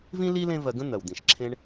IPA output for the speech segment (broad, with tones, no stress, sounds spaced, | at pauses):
v ĩ˥ l i˥ l ẽ˥ v ɜ˧ ɡ ə̃˥ n̪ ɜ˩ w d̪ ĩ˩ ʃ ǁʰ ẽ˧ ɳ